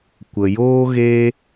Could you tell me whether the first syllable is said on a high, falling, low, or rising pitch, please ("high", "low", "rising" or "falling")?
low